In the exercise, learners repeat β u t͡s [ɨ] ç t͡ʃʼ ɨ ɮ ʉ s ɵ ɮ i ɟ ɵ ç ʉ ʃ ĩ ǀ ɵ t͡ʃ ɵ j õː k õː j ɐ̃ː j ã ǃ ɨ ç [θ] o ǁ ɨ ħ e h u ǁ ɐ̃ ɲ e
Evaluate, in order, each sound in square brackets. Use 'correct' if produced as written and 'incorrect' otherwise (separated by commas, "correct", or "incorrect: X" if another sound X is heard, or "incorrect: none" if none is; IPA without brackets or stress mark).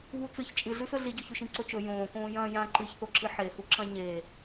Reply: correct, correct